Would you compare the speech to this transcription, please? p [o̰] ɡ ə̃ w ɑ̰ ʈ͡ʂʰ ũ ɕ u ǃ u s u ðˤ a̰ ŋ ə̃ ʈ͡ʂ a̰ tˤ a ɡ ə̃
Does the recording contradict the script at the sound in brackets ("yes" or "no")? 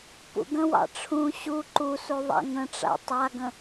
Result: yes